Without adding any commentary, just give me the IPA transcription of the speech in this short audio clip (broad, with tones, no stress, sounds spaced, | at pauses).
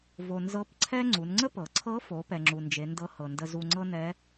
v o˩ n z ɤ˧˥ p ǀʰ ɛ˥ ŋ͡ǀ u˩˧ n ŋ͡ǀ ə˥ p ɤ˩ ǀʰ ɤ˧˥ f o˩˧ p ɛ˩ ŋ͡ǁ u˩ n d͡ʒ e˩˧ n d ɤ˧˥ h ɤ˩ n d ə˧ z u˧ ŋ͡ǀ ɤ˥ n ɛ˧˥